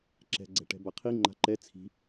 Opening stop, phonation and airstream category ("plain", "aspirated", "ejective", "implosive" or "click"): click